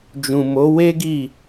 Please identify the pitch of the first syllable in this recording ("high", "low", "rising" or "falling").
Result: low